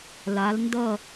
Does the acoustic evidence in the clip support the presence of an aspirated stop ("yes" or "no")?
no